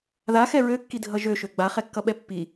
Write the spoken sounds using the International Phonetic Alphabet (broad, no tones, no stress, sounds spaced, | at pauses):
ð a x ɛ ɹ ø kː i dʱ ʌ ʒ ø ʃ ø ɡ͡b a χ ɛ kː ʌ ɓ ɛ pː i